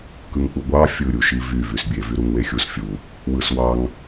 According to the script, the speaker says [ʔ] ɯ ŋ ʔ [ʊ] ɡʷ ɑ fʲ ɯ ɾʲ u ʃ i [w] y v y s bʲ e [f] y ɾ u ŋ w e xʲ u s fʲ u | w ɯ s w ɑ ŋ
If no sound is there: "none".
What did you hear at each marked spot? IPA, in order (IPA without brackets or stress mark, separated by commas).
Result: k, u, v, v